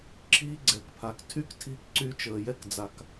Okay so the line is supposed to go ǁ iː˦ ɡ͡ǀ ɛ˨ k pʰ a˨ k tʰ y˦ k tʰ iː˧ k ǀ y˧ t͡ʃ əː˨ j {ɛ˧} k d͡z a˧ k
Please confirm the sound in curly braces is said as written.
no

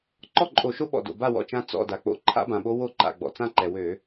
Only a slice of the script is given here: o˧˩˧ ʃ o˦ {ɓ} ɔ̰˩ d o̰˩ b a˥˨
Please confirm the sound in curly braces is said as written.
yes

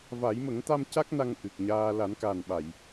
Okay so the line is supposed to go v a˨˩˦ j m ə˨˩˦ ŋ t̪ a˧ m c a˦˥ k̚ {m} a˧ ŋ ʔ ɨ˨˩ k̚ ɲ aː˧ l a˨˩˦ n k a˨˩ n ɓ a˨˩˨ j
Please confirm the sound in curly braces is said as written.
no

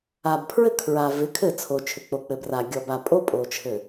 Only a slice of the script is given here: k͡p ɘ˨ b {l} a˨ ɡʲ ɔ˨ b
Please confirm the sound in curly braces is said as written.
no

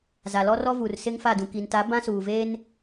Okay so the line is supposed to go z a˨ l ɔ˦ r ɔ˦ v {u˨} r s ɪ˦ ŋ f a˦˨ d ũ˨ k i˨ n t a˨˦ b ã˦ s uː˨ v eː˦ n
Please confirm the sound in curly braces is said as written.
yes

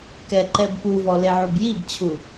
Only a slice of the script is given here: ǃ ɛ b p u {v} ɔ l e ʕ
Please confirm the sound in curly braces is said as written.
yes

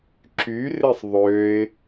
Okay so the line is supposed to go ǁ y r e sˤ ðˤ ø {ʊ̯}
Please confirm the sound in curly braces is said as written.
no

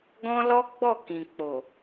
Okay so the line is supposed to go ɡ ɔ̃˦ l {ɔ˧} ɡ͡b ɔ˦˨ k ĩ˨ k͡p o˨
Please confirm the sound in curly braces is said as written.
no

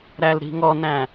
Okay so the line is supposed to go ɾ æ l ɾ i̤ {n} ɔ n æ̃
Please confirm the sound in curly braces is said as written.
no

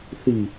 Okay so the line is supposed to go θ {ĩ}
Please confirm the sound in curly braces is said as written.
no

